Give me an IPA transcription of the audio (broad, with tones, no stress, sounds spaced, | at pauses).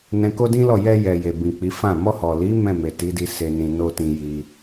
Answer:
n ɛ̃˧ k o˦ d ĩ˦ l ɔ˦˨ j ɛ˧ j ɛ˨ j e˨ b ĩ˨ k͡p i˨˦ f ã˦˨ m ɔ˧ h ɔ˨ l i˨˦ m ɛ̃˦˨ m e˨ t i˨˦ d i˧ s e˦ n ĩ˧ n o˦ t ĩ˧ j i˧